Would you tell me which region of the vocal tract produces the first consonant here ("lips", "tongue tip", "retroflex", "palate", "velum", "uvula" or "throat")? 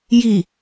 palate